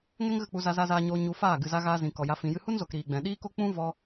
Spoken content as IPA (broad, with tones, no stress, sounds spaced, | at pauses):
ŋ ɛ˦ ŋ ɣ ə˦˨ k͡p u˧ z a˧ z a˧ z aː˧ ɲ oː˧ ɲ u˧ f aː˦˨ ɡ ɨ˨ z a˧ ɣ aː˧ z ĩ˨ k ɔ˨ j a˧ f ĩ˨ j ɨ˧ h u˦ n z o˨ k ɾ iː˨ ɡ͡b ɛ̃˨ ɗ iː˦ k o˦ k͡p ũ˦ v ɔ˧